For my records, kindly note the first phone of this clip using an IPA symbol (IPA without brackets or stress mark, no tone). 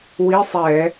w